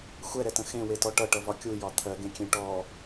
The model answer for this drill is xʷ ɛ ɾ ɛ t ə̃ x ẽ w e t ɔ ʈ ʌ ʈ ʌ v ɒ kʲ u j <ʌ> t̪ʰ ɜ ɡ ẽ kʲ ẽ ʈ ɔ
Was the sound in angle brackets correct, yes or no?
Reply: no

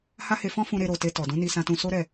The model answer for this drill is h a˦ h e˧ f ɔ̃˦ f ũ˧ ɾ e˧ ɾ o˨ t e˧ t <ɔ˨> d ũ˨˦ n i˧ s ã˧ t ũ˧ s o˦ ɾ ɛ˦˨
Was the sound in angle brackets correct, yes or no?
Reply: yes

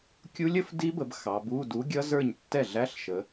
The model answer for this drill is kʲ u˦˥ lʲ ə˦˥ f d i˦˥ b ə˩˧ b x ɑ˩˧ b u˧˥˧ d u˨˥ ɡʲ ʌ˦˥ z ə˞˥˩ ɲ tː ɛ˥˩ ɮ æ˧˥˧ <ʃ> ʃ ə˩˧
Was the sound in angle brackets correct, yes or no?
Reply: no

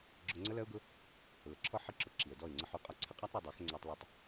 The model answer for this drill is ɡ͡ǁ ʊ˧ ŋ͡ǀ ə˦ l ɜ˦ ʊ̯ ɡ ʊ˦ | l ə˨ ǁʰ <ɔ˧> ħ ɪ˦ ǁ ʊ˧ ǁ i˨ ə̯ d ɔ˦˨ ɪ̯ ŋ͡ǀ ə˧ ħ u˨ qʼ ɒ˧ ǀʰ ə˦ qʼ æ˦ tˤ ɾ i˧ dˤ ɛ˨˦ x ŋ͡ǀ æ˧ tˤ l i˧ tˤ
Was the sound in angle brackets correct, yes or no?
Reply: no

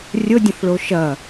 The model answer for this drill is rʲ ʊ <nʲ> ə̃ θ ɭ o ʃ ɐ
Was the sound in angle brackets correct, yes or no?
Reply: no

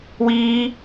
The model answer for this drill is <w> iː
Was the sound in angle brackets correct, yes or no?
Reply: yes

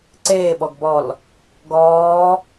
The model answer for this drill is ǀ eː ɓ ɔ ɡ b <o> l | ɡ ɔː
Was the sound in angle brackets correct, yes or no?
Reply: no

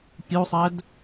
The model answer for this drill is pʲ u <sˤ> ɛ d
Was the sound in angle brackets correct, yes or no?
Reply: yes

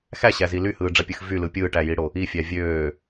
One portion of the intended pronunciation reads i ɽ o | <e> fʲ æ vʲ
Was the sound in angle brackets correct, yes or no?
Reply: no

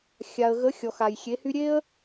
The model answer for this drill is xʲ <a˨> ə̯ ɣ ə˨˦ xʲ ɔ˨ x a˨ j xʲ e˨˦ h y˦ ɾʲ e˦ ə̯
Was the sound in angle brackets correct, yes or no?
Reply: yes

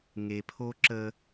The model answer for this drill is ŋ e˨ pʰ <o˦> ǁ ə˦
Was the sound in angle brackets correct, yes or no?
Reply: yes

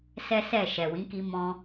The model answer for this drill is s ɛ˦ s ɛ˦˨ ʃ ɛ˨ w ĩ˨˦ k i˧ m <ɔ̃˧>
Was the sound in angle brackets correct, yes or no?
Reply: yes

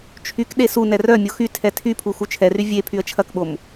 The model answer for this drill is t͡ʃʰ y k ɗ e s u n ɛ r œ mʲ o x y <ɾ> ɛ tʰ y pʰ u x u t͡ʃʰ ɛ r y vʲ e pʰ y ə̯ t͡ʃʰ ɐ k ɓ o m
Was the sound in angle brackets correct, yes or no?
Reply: no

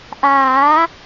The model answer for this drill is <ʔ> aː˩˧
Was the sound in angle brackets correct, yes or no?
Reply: yes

